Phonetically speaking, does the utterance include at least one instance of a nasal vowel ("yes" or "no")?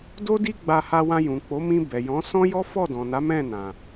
yes